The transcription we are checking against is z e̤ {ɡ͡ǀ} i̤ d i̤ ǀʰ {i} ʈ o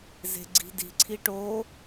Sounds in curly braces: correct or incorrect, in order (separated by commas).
correct, correct